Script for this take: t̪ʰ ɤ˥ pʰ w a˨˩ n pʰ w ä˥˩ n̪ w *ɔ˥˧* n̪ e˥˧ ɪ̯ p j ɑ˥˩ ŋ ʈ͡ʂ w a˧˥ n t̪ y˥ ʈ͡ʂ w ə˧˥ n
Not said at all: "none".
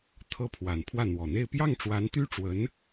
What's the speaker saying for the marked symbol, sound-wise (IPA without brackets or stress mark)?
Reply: ɔ˨˩